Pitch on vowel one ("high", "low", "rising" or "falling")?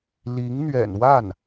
rising